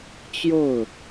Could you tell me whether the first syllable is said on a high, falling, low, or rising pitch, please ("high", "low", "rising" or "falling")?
falling